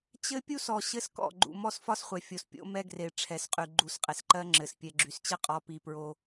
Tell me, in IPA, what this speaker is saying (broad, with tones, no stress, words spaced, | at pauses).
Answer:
t͡ɕɘ˦pʲu˦sɔ˨ ɕɘ˦skɔ̰˦˨ ɡ͡ǃṵ˨ mɔ˦sfɒ˦sχʷɛ˨ fʲo˨spʲo̰˦mɛ˦ ɡre˨ ʈ͡ʂʰɛ˨sqʼy˨ ɡ͡ǃu˨˦sqʼe˨sǃɜ˦ ŋ͡ǁɘ˨s pʲɛ˨ɡ͡ǁy˨st͡ɕɘ˦ qʼɔ˦pi˦ pɹo˦